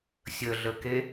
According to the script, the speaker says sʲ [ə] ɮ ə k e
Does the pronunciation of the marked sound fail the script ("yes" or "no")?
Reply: no